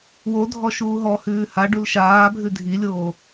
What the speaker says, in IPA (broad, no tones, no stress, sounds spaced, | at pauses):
w o dʱ ɔ ʃ uː ɦ ɔ h ʉː h a ɖ u l ʃ aː bʱ ʉ dʱ i lʲ oː